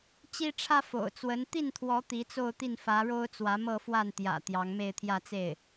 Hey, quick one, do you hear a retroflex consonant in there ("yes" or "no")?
yes